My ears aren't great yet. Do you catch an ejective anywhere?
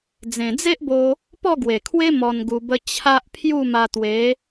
no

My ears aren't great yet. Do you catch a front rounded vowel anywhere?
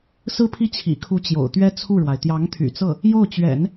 yes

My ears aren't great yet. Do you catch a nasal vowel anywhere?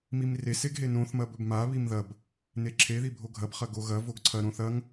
yes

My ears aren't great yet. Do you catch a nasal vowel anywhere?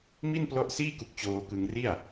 no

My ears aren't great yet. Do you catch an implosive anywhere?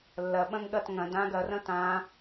yes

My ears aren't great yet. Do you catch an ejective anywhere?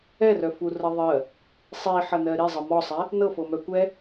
no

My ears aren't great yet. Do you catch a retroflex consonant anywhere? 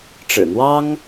yes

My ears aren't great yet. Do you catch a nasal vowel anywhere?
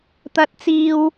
no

